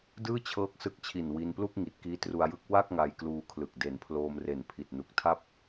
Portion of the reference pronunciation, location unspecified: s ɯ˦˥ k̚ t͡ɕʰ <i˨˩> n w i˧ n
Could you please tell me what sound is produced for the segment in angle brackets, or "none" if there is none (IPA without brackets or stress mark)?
i˨˩